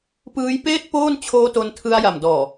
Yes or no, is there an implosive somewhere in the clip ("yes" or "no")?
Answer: no